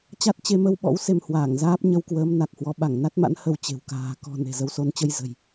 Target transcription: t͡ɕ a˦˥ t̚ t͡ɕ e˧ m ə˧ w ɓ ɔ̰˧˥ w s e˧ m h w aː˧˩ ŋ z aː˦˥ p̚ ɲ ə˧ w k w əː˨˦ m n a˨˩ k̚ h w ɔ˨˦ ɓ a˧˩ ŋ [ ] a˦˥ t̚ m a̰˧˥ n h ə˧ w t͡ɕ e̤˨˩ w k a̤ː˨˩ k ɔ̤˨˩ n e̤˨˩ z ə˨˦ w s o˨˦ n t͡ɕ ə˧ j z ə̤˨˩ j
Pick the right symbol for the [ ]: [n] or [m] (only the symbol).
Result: n